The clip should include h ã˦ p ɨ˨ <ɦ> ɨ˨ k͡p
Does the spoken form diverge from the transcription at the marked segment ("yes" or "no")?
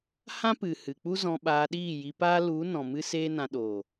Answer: yes